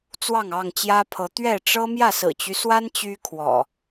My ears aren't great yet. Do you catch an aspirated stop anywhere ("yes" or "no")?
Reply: yes